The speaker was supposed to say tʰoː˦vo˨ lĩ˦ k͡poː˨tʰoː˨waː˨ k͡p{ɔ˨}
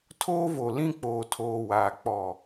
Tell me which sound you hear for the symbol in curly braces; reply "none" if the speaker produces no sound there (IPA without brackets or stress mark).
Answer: ɔ˨